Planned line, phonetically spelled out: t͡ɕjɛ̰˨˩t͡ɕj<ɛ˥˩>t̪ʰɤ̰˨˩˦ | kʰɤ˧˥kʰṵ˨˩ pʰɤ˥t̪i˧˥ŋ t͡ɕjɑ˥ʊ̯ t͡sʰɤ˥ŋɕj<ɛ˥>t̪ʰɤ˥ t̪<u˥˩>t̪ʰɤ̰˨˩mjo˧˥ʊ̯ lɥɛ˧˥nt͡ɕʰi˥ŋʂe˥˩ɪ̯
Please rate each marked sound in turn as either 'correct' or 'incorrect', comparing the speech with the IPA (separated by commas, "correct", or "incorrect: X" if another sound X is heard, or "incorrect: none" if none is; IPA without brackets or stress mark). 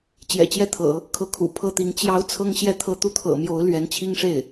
correct, incorrect: ɛ˥˩, correct